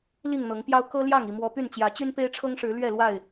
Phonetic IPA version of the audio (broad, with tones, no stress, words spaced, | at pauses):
li˥˨ŋn̪ɤ˨˦ŋpjɑ˦ʊ̯ kɤ˦ljɑ˥˨ŋ i˦mwɔ˦ py˥˨nt͡ɕjä˨˦ t͡ɕy˦npe˦ɪ̯ʈ͡ʂʰɤ˦ŋʂɻ̩˨˦ lɥɛ˥˨lwa˥˨ɪ̯